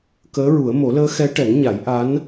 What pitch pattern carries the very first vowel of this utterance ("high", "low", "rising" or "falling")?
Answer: rising